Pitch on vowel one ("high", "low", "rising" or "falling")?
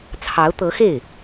rising